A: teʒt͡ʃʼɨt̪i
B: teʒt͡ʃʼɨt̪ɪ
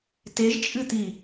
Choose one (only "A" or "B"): A